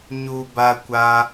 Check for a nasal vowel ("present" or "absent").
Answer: absent